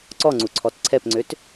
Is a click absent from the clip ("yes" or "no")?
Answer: no